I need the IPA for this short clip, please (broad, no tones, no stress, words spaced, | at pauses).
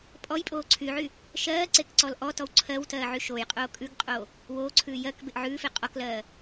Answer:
pʼɔjpʼoː ǀʰyʕy | ʃɜː ǀekǀɔlʔɔtɔw ǀʰɜwtɜː ʕyʃojqʼoː kʼʉɡqʼoː | woːǀʰʉː jɜk beʔʕʉːfe qʼɔklɜː